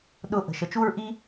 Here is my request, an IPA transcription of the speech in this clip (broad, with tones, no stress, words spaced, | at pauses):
ɗʊː˧ʔə̤˨ ʃə˨t͡ʃu˦ɹ ʔi˦